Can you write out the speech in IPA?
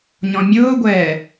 ɲ ɔ̃ mʲ ʊː ɡʷ ɛ

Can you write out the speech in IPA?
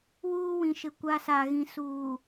w uː˦ w ĩ˨ ʃ ɪ˨ kʷ a˦ s a˨ ɣ ĩ˨ s uː˨

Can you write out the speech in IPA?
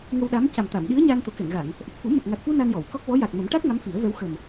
ŋ ə˧ w ɗ a˧˥ m c a˨˩ m t̪ a˨˩˨ m ɗ i˧˥ ə̯ ɲ a˧ n t̪ o˨˩˦ k ɛ˨˩˨ ŋ ɣ a˨˩˨ ŋ | ʔ ə˨˩ k̚ f u˨˩˦ m ə˨˩ k̚ ŋ a˨˩ k̚ f u˧ n a˧ n j ɔ˨˩˨ w k ɔ˦˥ k̚ v ɔ˧˥ j a˨˩ k̚ m ə˨˩˦ m ʈ a˦˥ k̚ ŋ a˧˥ m f i˨˩˦ ə̯ v ɛ˧˥ w x ə˨˩ m

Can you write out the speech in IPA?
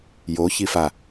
j o ç i f a

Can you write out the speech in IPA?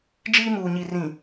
d͡ʒ iː˦ m uː˨ ɲ i˨ r ĩ˨

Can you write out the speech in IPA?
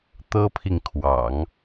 t̪ ɤ˥ pʰ i˨ ŋ kʰ w ɑ̰˨˩˦ ŋ

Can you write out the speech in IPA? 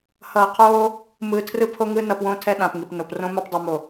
h ʌː˨ qʰ oː˦ | m ɯː˨ tʰ r ɯ˦ pʰ o˦ ŋ ɯ˦ n ʌ˨ p w õ˦˨ tʰ ɛ˦ ɗ ã˨ p ŋ i˨ p n o˨ p r õ˦ m a˦ p dˤ ɯ˨ m o˨

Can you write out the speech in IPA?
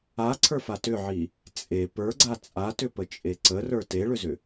a ǀʰ ə˞ f a t ʏ ʕ i | t͡sʼ e p ə˞ ɡ͡ǀ a t͡sʼ a t ʏ p ə t͡ʃʼ e ǀ ə r ə˞ t e ɭ ʏ z ʏ

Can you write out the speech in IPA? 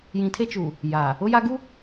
j ĩ˨ tʰ e˦ t͡ʃ u˨ | j aː˨ | ʊ˦ j a˦ ɡ u˦

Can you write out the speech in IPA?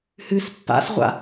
h ɨ s pː a̰ s ʁʷ a̰

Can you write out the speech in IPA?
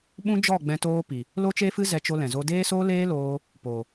ɓ ũ˦ d͡ʒ ɔ˦˨ ɡ͡b ɛ̃˧ t oː˦ p i˨ | l o˦ t͡ʃ e˦ f ɨ˦ z ɛ˧ t͡ʃ o˧ l ɛ̃˨ z o˧ d eː˦ s oː˦ l eː˦ l oː˧ | p o˨

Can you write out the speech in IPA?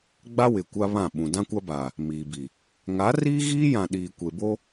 ɡ͡b a˦ w ɪ˨ kʷ a˦ β ã˦˨ ɓ ũ˨ d ã˦ kʷ a˦ b aː˨ | m iː˨ b i˨ | ŋ a˨˦ r iː˦ ɣ iː˦ j ã˨ ɗ iː˨ kʷ e˨ b o˦

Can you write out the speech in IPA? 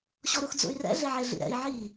ɕ ɔ ɾ u x d͡z ṵ y̯ r ɛ̰ ɮ e ʕ e ɮ ḭ ɾ ɛ̰ i̯ ʕ i

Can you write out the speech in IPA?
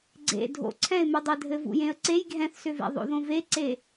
ɡ͡ǀ ḛ dʱ o̰ ǀʰ ɛ̃ ɪ̯ m u dˤ ɛ dʱ ɘ v ṵ j ẽ ə̯ ǀ e j ɡʱ ɛ̃ θ s ʏ v ḛ ðˤ o̰ ð õ v e ǀ e

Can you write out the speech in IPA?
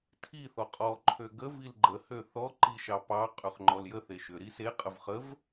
tʰ i θ ɔ qʼ ɔ ǃʰ ø ɡ ə v i l ɡ͡ǃ ə h ø θ ɔ ǃ i ʃ ɑ p ɑ qʼ ø χ ŋ͡ǃ ɔ l j ə θ e ʃ ʏ ɾ i s e qʼ ə v χ ə v

